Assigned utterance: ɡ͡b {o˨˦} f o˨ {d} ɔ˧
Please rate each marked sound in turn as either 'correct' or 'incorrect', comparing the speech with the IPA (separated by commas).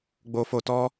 incorrect, incorrect